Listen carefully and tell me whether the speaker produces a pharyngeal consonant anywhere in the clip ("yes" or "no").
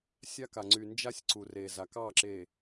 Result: no